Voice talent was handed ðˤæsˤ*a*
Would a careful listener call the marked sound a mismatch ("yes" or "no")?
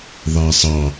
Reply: yes